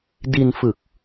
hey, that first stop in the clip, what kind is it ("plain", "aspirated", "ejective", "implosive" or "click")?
plain